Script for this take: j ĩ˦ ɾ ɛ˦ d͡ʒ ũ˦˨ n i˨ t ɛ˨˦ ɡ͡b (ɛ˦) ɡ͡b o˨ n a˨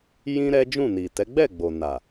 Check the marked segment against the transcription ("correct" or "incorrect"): incorrect